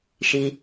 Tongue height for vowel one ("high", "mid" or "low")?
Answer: high